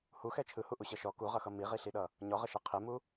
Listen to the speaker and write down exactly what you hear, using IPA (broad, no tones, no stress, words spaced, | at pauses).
huxɛ t͡ʃʰɯhuʔuɕʌ ʃɔ kuʁʌxʌ miʁiɬiɗʌ | ɲɔʁʌʃɛ qʰɪmu